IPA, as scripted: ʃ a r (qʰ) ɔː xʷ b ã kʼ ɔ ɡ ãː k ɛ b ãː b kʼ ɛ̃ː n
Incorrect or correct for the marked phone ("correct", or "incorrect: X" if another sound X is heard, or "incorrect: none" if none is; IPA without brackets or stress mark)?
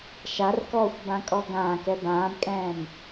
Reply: incorrect: k